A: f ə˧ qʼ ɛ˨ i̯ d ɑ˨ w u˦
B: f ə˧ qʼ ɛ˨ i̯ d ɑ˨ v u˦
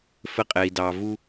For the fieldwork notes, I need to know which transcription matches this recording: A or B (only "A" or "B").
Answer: B